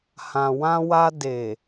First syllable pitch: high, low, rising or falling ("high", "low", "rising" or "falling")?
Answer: low